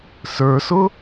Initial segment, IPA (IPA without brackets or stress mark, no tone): s